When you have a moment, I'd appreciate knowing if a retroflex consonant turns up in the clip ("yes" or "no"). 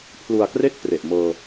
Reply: no